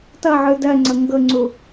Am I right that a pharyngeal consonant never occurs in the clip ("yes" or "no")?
no